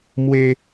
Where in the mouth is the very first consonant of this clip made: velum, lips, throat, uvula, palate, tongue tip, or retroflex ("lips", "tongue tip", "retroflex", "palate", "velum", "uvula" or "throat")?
lips